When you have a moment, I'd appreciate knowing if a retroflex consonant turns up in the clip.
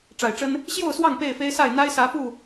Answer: yes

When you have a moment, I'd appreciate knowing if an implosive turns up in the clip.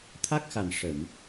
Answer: no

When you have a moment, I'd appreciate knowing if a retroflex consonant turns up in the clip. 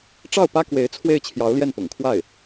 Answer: yes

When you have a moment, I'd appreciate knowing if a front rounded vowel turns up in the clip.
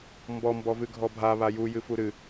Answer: no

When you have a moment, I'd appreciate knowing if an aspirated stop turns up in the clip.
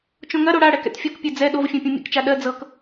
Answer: no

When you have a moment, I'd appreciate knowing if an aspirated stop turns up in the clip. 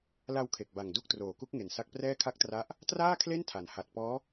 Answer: yes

